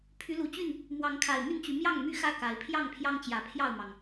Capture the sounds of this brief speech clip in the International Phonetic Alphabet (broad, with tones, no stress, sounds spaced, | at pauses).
pʰ y˨˦ l u˨˩ t͡ɕ y˥˨ n | m w ɑ˨˦ ŋ kʰ a˨˩ ɪ̯ m y˥˨ n t͡ɕ y˨˦ m j ɑ˥˨ ŋ m y˥˨ x ä˥˨ k a˨˦ ɪ̯ pʰ j ɑ˥˨ ŋ pʰ j ɑ˦ ŋ t͡ɕ j ä˨˩ pʰ j ɑ˥˨ ʊ̯ m ɑ˩ ŋ